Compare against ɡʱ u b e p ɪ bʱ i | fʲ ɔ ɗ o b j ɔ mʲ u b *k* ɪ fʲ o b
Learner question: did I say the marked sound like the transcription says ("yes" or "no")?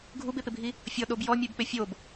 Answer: no